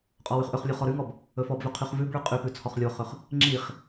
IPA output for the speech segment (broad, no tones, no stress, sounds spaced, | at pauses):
qʼ ɔ w ʉ χ ʔ ɵ χ lʲ o χ ɔ ɾ ʉ ŋ ɔ b | ɵ f ɔ b v ɵ qʰ y χ v ʉ b ɭ ʉ qʼ y p ʉ t͡sʰ ɔ χ lʲ o χ ɵ χ | ŋ͡ǁ i χ